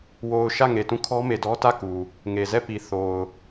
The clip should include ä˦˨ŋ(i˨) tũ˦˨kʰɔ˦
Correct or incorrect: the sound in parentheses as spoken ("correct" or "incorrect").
incorrect